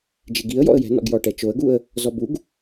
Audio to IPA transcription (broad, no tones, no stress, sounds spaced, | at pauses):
d͡ʒ ɪ ɡ i ə̯ j ɔ̰ ə̯ j ɛ̤ n ɔ̰ ɡ j ɔ ʈ ɛ t͡ʃ o ə̯ ɡ u ə̯ | z ɔ b u ɡ